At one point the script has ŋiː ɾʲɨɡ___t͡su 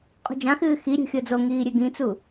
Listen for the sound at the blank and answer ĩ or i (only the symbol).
ĩ